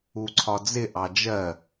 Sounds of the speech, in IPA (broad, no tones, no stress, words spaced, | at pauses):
uǀʰɒd͡zɪ ʔɑd͡ʒɜ